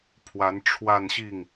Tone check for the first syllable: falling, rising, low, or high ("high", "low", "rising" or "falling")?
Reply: rising